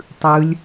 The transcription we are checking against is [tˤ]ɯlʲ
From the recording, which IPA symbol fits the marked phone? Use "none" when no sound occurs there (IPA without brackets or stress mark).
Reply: tˤ